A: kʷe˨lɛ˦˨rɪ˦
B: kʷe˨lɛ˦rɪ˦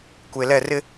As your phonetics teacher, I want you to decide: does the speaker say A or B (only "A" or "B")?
A